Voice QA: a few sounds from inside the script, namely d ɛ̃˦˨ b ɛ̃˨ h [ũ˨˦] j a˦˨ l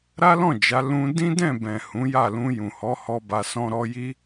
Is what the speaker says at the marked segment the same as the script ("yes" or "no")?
yes